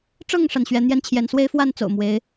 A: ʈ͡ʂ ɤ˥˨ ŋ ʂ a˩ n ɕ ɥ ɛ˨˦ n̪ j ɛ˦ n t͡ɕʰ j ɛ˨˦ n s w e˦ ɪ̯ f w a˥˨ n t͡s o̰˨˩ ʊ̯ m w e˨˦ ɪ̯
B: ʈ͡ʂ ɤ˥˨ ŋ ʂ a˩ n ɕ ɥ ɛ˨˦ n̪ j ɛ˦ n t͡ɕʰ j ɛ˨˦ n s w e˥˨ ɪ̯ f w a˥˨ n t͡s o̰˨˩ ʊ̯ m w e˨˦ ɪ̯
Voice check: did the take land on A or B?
A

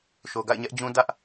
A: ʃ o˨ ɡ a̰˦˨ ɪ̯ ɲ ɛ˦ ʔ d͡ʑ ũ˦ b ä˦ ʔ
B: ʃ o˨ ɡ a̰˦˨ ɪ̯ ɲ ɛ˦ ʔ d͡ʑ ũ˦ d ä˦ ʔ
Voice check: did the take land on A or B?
B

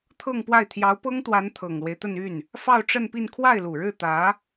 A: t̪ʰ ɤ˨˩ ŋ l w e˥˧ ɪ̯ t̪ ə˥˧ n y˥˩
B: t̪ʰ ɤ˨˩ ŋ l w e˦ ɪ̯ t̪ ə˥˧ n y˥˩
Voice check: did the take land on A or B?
B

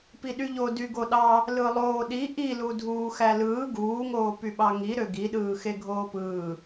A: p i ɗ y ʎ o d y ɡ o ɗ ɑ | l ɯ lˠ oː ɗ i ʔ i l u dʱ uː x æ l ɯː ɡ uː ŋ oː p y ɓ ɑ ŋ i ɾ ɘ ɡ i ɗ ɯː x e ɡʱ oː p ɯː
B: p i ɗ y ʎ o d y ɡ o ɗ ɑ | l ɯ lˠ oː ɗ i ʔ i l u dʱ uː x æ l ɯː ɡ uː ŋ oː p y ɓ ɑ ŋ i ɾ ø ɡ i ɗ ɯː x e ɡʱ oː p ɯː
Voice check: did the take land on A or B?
B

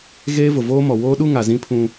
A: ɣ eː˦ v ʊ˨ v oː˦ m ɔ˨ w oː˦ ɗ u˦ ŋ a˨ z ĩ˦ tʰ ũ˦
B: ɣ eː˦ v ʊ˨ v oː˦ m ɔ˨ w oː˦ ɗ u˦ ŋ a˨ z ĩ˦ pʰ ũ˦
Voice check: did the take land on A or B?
B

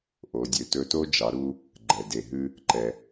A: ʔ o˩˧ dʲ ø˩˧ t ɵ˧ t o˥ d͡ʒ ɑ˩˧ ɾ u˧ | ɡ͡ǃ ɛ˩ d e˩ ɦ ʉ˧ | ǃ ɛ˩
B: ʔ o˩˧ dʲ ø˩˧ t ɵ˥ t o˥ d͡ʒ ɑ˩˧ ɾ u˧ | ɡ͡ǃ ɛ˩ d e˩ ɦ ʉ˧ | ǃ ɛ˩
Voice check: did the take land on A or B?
A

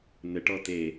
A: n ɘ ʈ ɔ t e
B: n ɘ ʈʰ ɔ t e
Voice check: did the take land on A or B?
A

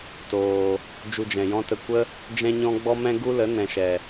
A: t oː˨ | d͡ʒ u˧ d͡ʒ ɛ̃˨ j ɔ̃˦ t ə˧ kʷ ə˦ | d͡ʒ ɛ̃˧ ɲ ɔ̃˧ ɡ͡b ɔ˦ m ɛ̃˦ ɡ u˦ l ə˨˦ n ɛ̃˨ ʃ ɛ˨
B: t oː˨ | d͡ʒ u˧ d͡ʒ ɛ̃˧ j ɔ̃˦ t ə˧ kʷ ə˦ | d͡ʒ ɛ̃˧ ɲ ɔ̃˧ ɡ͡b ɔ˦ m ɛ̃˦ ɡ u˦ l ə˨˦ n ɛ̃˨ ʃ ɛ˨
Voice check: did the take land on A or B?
A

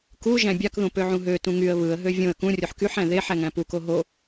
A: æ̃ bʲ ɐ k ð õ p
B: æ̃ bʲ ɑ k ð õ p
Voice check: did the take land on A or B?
B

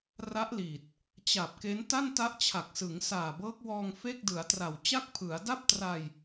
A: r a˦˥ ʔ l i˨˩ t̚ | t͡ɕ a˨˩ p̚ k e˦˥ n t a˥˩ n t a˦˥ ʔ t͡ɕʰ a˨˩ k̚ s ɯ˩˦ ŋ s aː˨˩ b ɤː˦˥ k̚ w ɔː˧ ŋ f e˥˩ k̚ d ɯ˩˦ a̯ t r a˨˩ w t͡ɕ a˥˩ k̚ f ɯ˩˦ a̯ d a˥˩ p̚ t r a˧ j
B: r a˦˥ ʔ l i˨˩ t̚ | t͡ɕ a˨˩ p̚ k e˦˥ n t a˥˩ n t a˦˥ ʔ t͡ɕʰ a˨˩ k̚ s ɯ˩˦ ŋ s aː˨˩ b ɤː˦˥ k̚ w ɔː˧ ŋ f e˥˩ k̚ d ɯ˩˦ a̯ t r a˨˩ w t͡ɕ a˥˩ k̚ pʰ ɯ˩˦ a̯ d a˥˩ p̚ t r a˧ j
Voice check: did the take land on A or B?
B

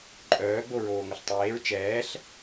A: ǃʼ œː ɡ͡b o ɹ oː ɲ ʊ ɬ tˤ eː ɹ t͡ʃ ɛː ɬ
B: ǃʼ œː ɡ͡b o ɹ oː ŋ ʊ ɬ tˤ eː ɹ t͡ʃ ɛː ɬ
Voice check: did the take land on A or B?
B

